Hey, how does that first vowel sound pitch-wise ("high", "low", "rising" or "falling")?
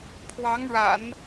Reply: rising